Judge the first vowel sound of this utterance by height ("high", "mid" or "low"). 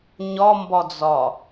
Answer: low